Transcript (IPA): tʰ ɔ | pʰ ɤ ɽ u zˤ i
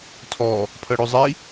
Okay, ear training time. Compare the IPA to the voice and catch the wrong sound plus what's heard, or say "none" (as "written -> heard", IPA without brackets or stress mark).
none